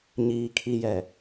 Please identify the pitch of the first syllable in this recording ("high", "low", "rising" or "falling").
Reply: low